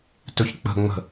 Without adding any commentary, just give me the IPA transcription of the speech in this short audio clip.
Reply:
t ɵ ç k͡p ə̤ ŋ͡m ə̤

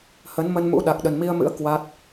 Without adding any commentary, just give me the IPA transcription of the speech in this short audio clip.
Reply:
h ə˨˦ n m ə˧ n m ṵ˧˥ ɗ a˨˩ k̚ ɗ ə˨˩ n m i˧ ə̯ m ɨ̰˧˥ ə̯ k w a˦˥ t̚

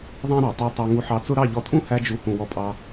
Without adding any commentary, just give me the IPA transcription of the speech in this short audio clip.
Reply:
ðˤ æ̃˦ ɾ ɑ˨ tˤ ə˞˧ tˤ ɑ˧ ŋ u˧ ħ ɑ˧ t͡s ʊ˦ ɾ ɑ˦˨ ʎ ɔ˧ tʼ ũ˦ h æ˧ d͡ʒ u˨ h ũ˨ w ɔ˧ pʼ ɑ˧

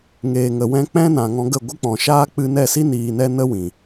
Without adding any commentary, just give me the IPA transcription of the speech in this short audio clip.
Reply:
ŋ eː˨ ŋ ə˨ w ɛ̃˧ k͡p ɛ̃˦ n ã˨ ŋ ɔ̃˧ ɡ ə˦˨ ɡʷ ɨ˦ k͡p ɔ̃˨ ʃ aː˦ k͡p ɨ˧ n ɛ˦˨ s i˦ n iː˧ n ɛ˦ n ə˦ w ĩ˨

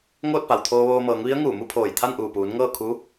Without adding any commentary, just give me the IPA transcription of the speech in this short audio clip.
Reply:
ŋ oː˥˨ t̚ p a˩ w t̪ʰ oː˧ ʋ oː˧ m ɤː˩˧ ŋ ʋ i˧˥ ə̯ ŋ uː˧˩ m u˥˨ pʰ oː˧˩ j t̪ʰ a˥˨ n ʔ uː˧˩ p uː˩˧ n ŋ ɤː˥˨ kʰ uː˧˥

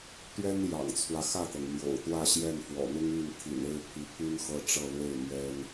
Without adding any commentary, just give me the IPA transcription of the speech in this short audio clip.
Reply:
t̪ ɥ ɛ˥ n j ɑ̰˨˩ ŋ t͡sʰ w ä˦ x ä˥˩ t̪ ɤ˩ ŋ m j o̰˨˩ ʊ̯ t̪ w ä˥˧ ɕ j ɛ˥˩ n f w ɔ̰˨˩ n̪ ʊ˥ ŋ y˥˩ n t̪ʰ ḭ˨˩ n e˥˩ ɪ̯ pʰ i˧˥ pʰ y˥ n x ɤ˥˧ ʈ͡ʂ ɤ˥˧ l w e˥˩ ɪ̯ m ɥ ɛ˥ n

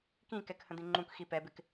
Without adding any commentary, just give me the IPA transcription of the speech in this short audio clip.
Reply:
k ĩ k ɛ k h ə̃ d̪ ĩ ŋ͡ǃ ũ k x i p ɛ b ɪ k

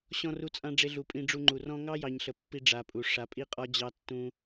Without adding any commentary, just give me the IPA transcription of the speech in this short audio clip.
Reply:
ɕ ɔ̃˧ r u˧ t͡sʼ ã˧ ɖ͡ʐ e˧ ɮ u˨ pʼ ĩ˧ ɖ͡ʐ u˧ ŋ͡ǃ u˨ r ɔ̃˧ ŋ ɑ˦ j ɑ˨ ɲ ɬ ə˨ pː i˧ ɖ͡ʐ a˨ pʼ u˨ ʂ a˨˦ pʼ i˦ qʼ ɒ˦ d͡ʑ ɑ˦ tː ũ˦

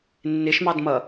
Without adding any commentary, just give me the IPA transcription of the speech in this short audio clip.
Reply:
nː ɪ ʃ m ɑ d m ʌ

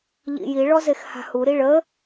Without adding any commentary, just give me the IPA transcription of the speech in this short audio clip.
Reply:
ʎ ḭ j i ɭ ɔ z e x h a̤ h u ɾ i ɭ ə

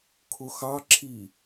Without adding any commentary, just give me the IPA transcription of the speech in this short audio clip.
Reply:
kʰ ʊ x ɑ ǁʰ i

